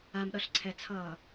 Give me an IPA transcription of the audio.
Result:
a m ɗ ʌ ɬ ǀʰ ɛ t͡sʰ ʌː

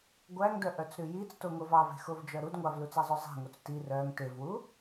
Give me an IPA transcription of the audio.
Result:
ɡʷ æ ŋ d œ ʔ œ t͡s ɾ ʉ j i t͡s t o ŋ o v ɑ v e̤ x o v d͡ʒ œ ɾ u d ŋʷ ɑ v l u t͡s æ zˤ œ zˤ e̤ ŋ o t͡s t i r œ ŋ t e v w u

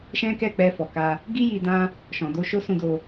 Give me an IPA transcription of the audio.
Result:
ʃ ɛ̃˦ k ɛ˦˨ k͡p ɛ˧ f ɔ˨ k a˧ | ɡ i˦ j i˧ d ã˦ | ʃ ɔ̃˨ d o˧ ʃ o˦ s ũ˧ d o˧

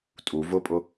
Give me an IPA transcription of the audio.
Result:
tʼ u v ʊ pʼ ʊ

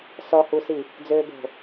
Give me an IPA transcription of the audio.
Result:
s ɔ h u s i | d͡z øː b o̤

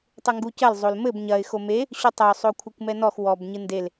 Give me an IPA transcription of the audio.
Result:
tˤ ɘ ŋ ɡ u c ɐ l zˤ o l m ɘ b ɲ ɐ ɪ̯ x o m e | ɕ u tˤ ɐ ʊ̯ sˤ o kʷʰ ɘ kʷ m ɛ n ɔ x w ɔ b ɲ ɨ n d e l

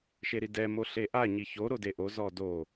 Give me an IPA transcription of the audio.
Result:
ʃ e ɾ i d ɛ m o ɬ e ʔ a ɲ i ç o ɾ o d e ʔ o z ɔ d o

